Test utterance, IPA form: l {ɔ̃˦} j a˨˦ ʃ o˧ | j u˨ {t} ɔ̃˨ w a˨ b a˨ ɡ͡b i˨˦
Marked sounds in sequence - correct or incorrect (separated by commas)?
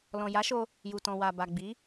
incorrect, correct